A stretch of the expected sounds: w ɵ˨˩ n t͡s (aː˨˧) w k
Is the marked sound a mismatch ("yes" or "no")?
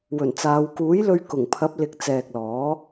no